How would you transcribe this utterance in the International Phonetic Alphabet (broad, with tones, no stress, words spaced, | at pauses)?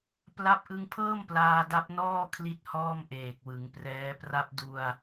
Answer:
pla˦˥p̚ʔɯ˧ŋpʰɤː˥˩m plaː˧da˦˥p̚nɔː˥˩ kʰli˥˩t̚hɔː˥˩mʔeː˨˩k̚ wɯ˩˦ŋprɛː˦˥pra˥˩p̚ du˧a̯